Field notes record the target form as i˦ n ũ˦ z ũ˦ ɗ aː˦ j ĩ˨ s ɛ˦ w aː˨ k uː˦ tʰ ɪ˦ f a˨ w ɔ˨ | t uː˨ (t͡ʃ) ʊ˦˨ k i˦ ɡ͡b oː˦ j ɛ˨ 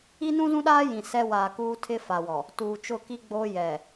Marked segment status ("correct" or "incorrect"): correct